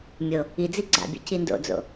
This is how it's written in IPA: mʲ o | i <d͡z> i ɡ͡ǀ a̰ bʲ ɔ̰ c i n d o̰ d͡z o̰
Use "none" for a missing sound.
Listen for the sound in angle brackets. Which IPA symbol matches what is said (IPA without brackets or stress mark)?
d͡z